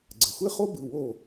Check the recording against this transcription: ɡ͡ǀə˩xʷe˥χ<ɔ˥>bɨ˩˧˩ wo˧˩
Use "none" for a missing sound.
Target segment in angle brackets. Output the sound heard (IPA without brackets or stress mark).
o˥